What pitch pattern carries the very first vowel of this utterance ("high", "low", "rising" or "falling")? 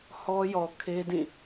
high